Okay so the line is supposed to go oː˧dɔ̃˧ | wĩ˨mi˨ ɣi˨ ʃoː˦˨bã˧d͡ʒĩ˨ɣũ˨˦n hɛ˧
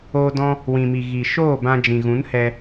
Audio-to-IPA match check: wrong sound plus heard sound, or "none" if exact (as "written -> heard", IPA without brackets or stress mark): none